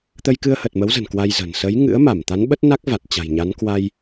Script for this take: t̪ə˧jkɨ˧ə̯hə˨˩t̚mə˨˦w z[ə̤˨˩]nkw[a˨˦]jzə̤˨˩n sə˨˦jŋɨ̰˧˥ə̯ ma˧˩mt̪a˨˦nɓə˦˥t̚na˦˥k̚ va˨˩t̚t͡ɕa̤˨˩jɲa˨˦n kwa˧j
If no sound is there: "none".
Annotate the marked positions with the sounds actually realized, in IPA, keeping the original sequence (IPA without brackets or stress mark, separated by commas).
ə̤˨˩, a˧